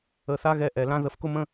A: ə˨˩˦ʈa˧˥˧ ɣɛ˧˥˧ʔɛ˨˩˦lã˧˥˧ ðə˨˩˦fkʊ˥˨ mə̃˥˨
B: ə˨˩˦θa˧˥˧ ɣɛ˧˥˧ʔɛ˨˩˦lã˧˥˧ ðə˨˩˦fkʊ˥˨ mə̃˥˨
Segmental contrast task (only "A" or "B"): B